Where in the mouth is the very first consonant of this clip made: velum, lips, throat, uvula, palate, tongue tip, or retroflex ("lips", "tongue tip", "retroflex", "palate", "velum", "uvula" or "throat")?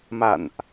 lips